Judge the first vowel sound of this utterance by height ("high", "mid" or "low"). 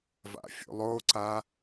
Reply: low